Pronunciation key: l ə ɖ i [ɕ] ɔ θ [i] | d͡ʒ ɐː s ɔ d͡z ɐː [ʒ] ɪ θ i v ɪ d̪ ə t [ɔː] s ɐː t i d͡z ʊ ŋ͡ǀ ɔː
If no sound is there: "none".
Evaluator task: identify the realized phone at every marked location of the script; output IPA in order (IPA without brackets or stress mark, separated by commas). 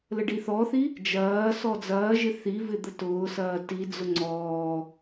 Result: θ, i, ʒ, ʊː